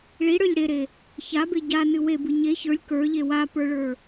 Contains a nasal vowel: no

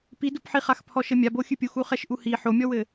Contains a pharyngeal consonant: yes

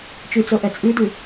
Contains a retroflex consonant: no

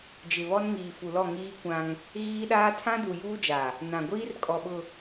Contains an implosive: yes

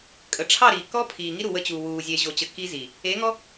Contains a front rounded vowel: no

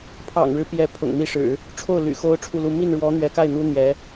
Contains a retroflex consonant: yes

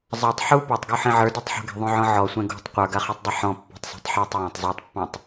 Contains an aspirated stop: no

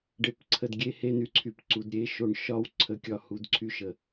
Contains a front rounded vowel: yes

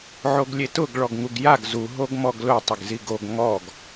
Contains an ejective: no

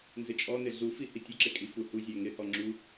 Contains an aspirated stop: no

